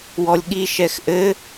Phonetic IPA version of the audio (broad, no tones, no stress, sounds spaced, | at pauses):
w ɔ lʲ ɠ i ʃ ɛ x ʔ ɘ